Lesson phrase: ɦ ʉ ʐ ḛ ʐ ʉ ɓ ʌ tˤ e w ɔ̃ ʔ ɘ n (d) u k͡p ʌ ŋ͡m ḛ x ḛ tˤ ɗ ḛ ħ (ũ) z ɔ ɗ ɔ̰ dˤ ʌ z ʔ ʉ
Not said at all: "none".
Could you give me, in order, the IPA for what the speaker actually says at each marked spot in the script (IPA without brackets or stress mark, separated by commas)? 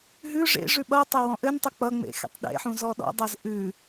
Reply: tˤ, ũ